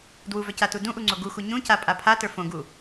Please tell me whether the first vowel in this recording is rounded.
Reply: yes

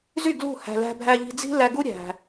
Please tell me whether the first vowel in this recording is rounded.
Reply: yes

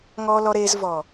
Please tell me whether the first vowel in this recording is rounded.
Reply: yes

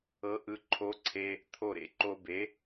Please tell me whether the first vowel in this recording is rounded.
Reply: no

